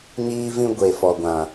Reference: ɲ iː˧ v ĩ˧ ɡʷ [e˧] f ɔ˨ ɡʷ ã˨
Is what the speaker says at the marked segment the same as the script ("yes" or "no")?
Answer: no